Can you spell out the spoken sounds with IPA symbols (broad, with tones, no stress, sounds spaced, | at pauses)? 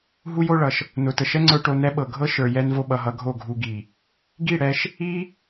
ɦ u˦ j o˦ ɭ ʌ˨ ʃ | n ʊ˨ t ə˨ ʃ ɛ˦ ŋ͡ǀ ə˞˧ ʈ o˧ n ɛ˦ ɓ ɤ˨ ɡʱ ɤ˦ ʃ ə˞˨ j ɛ˧ n v o˧ ɓ ʌ˨ ɦ ʌ˧ ɡʱ o˦˨ ɡʱ u˧ ɡ i˨ | ɡ i˦˨ ɽ ɛ˧ ʃ | i˦